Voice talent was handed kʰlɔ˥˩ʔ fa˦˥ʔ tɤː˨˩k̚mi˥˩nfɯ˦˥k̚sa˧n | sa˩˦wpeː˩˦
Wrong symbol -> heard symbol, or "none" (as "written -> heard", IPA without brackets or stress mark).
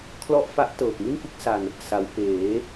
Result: none